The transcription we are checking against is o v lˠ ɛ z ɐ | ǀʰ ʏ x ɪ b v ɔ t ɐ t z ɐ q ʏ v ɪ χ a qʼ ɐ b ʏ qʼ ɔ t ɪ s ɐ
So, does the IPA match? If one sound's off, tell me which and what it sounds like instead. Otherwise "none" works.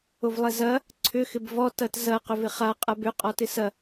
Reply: none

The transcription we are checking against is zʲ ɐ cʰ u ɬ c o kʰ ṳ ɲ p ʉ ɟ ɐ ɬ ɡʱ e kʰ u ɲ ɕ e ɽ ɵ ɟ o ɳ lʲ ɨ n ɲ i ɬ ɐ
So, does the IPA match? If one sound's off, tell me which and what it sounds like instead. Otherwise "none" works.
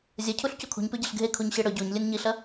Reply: ɳ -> ɲ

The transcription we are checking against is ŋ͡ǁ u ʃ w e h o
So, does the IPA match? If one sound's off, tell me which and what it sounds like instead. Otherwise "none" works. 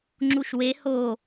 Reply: none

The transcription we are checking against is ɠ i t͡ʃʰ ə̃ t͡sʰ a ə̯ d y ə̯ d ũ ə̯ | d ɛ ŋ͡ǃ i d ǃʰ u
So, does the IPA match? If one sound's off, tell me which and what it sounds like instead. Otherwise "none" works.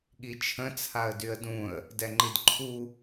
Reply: none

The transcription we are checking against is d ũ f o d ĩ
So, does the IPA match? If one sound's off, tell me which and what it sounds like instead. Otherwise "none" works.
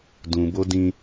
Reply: f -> b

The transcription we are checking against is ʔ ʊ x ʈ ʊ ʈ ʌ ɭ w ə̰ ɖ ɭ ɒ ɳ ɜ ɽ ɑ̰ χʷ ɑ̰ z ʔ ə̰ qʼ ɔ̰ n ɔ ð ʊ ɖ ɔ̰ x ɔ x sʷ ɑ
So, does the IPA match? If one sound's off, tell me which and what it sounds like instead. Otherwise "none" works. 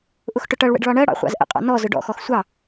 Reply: ð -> z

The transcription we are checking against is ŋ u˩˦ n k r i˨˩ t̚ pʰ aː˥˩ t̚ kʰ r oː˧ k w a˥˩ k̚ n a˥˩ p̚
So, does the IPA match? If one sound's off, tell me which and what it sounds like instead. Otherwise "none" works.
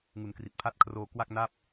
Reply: aː˥˩ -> a˥˩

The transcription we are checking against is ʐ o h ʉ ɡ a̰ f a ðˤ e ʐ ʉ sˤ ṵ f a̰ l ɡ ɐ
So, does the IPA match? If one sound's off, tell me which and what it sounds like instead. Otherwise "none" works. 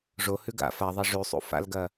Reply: none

